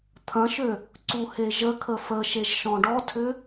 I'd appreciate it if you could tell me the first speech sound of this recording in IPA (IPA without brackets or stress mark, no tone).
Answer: t̪ʰ